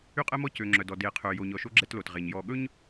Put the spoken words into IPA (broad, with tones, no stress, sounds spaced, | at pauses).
y˦ qʼ ɛ˦ m ɔ˦ c ø˨ ŋ͡ǁ œ˨ d ɔ˨ d e˨˦ qʰ ø˨ j o˨ ɲ ɔ˨ ʃ o˦ ɡ͡ǁ ɛ˦ t l o˨ t ʁ e˨ ɲ j ɔ˨ ɠ ɵ˦ ɲ